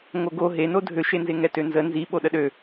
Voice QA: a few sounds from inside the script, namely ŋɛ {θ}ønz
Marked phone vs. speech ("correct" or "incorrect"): incorrect